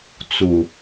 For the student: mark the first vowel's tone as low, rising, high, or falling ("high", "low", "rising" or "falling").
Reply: low